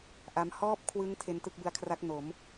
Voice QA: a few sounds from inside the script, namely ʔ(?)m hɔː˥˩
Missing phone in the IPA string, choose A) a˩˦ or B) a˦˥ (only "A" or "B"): B